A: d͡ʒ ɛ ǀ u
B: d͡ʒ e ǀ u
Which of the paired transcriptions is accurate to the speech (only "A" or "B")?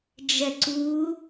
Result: A